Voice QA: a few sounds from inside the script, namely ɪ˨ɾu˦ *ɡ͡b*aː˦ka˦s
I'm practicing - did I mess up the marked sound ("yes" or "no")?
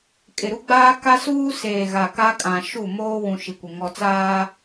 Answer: no